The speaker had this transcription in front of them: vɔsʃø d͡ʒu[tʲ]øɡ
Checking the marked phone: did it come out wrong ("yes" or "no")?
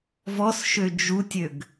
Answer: no